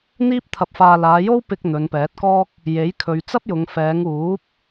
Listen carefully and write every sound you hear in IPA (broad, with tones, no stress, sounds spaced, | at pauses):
n̪ iː˥ p̚ t̪ʰ ɐ˧ p̚ f aː˧ l aː˨˧ j o˥ w p ɪ˧ k̚ n̪ ɵ˨˧ n p ɛː˨˥ t̚ k ɔː˥ k̚ | j e˨˥ j kʰ ɵ˨ ɥ t͡s ɐ˥ p̚ j ʊ˨ ŋ f ɛː˨˧ ŋ uː˨˥ p̚